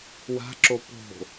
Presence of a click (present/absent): present